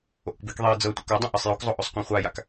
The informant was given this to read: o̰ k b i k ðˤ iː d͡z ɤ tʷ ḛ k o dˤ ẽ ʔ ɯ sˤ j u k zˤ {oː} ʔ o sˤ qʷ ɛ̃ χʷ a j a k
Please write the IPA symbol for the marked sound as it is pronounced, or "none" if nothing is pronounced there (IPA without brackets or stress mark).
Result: o